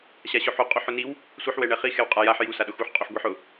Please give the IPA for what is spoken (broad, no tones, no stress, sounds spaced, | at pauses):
ɕ a ɕ ʊ ħ u qʼ u ħ ʊ n i w | sʷ i ħ w ɛ ɳ ɛ χ i x ɛ w qʼ a j a ħ j u s a ɗ ʊ x u ħ qʼ u ħ ɡʷ i ħ ʊ